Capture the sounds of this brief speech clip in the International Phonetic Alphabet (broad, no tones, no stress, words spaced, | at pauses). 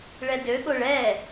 ɭɛdøɠoɭ ɛ